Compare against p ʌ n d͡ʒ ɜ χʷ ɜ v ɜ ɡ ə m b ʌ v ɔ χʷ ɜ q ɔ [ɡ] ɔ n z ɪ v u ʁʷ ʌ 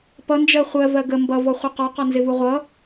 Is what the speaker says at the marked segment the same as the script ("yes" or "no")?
no